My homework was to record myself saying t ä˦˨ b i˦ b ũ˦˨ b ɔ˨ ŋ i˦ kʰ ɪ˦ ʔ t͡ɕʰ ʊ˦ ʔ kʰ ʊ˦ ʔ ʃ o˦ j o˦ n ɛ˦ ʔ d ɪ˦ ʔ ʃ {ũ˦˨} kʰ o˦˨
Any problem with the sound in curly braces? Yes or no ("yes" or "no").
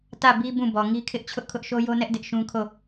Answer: yes